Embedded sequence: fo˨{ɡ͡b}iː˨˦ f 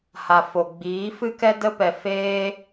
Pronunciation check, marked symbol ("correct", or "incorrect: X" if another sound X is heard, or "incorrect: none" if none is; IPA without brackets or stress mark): correct